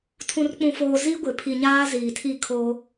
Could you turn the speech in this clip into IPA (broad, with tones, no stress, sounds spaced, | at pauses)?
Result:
tʰ ũ˨ r k͡p ũ˨ f oː˨ z i˦ ɡʷ ɪ˨ pʰ i˨ ɲ aː˦ z iː˨ tʰ i˦˨ kʰ o˦